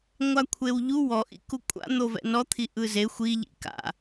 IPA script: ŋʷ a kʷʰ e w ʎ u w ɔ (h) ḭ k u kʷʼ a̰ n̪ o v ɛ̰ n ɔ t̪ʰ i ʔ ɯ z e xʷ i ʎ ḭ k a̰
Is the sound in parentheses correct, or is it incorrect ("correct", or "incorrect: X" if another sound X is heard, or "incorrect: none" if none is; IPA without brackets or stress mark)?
incorrect: ʔ